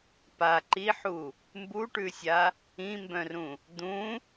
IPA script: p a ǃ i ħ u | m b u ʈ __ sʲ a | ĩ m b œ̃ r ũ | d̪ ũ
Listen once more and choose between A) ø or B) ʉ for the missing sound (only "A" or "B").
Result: B